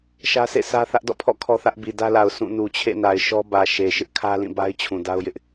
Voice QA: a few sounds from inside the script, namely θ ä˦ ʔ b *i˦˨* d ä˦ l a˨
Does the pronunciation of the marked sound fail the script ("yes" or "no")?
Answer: yes